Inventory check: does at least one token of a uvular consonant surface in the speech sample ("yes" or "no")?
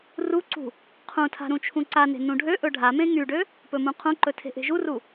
yes